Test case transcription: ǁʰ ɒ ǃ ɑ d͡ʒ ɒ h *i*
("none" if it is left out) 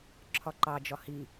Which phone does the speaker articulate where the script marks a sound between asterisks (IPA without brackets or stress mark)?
i